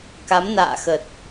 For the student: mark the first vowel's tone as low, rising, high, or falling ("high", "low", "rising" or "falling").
rising